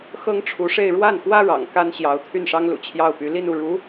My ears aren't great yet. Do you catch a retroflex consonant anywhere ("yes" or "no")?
yes